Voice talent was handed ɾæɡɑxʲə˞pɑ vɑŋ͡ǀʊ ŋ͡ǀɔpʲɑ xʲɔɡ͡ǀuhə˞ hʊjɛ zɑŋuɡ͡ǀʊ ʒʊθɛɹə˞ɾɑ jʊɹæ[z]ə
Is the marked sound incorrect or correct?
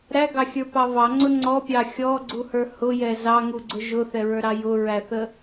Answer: incorrect